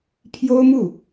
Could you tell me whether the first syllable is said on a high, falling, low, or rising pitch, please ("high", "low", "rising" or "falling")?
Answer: high